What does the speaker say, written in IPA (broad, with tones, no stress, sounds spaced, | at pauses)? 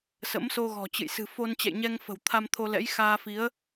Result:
s ə̰˧˥ m s o˧ ɣ ɔ̤˨˩ t͡ɕ ɨ̰˧˨ j s ɨ̤˨˩ f o˧ n t͡ɕ ɛ̰˧˨ j ɲ ɛ˧ ŋ f ə̤˨˩ w t̪ʰ a˧ m t̪ʰ o˧ l ɛ̰˧˥ j x aː˧ f i˨˦ ə̯